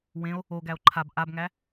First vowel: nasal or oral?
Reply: nasal